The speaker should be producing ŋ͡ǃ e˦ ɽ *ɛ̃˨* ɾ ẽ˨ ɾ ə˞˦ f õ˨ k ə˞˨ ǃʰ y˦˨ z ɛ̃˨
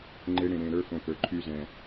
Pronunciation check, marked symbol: incorrect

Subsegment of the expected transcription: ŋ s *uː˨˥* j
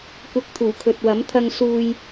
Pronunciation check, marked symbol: incorrect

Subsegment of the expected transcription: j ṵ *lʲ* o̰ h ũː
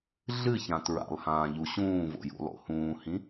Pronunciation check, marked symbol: incorrect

